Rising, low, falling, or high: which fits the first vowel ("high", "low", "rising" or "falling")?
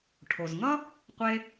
low